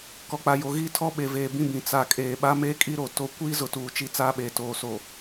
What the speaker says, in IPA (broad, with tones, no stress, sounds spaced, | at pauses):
k ɔ˨ k͡p a˨ j o˨ ɣ iː˦ tʰ ɔ˦ ɓ e˨ v eː˨ b ĩ˦˨ b ĩ˨ t͡s a˨ kʼ eː˨ ɓ a˦ m eː˦ kʼ i˦ ɾ o˨ t o˦ kʷ iː˦ z ʊ˨ t uː˨ t͡ʃ i˦ t͡s aː˦ ɓ eː˨ t oː˨ s o˨